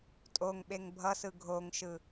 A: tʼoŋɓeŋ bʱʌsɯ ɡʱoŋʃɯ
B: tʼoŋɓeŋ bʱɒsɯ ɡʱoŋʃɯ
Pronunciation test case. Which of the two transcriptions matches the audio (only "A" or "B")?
A